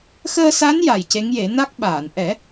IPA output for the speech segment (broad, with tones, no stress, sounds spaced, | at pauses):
x əː˧ s a˧˥ n j a˨˩ j c e˧˥ ŋ j e˨˩˦ n a˦˥ k̚ ɓ aː˨˩˨ n ʔ ɛ˨˩˦